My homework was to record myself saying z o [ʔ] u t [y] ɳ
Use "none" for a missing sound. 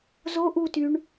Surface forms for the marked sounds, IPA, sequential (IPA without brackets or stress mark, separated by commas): ʔ, y